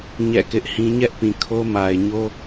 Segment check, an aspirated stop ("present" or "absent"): present